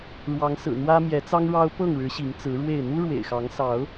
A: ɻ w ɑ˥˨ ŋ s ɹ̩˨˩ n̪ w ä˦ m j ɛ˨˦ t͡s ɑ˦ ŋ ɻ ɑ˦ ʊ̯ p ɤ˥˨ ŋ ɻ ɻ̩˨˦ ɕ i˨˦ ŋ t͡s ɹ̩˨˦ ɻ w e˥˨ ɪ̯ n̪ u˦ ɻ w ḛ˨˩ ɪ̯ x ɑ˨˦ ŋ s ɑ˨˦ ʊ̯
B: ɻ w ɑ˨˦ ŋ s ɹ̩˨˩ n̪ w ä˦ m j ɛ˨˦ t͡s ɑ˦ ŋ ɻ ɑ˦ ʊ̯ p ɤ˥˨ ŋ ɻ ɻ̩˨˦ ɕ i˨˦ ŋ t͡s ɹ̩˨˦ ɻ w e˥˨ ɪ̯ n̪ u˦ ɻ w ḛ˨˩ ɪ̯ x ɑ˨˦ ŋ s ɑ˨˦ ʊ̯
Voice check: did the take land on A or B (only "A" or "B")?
B